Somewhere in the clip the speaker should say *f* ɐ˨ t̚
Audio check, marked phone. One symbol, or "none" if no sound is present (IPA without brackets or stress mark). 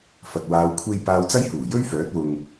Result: f